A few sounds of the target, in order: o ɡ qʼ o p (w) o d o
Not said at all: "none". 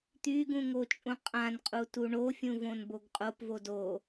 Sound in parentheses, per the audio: v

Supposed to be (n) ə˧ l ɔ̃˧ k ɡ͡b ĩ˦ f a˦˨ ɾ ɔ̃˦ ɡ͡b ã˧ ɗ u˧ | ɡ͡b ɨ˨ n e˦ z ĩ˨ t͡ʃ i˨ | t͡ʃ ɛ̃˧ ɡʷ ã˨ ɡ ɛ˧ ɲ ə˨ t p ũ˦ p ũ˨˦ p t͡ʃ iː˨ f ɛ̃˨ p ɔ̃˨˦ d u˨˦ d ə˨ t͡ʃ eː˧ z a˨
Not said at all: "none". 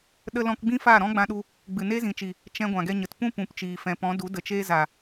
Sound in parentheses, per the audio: ɗ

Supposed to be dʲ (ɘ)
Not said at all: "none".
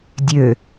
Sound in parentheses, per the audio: ø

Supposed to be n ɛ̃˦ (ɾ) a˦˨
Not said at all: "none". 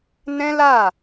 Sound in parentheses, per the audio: l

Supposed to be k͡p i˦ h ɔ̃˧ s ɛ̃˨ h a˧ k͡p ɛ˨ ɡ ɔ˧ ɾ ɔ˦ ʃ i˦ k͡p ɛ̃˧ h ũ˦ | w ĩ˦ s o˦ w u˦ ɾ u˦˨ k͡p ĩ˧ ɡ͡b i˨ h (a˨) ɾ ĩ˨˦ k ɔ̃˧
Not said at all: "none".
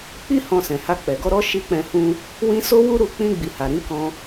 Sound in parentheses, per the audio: a˨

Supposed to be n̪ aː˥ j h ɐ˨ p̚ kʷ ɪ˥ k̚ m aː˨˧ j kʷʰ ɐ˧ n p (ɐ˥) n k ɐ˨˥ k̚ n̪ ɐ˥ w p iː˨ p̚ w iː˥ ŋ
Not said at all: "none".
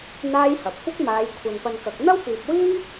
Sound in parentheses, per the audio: ɐ˧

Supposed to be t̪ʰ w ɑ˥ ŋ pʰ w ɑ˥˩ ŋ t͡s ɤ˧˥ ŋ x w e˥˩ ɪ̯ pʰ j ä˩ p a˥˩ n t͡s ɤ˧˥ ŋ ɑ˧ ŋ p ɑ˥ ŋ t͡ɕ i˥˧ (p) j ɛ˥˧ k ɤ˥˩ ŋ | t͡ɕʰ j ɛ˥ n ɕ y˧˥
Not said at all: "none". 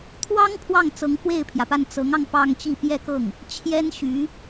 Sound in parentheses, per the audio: p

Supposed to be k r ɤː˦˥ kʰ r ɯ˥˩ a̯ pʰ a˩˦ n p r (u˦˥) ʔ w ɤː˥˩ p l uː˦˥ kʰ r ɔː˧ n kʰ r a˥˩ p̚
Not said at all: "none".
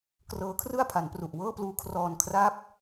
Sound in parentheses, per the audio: u˨˩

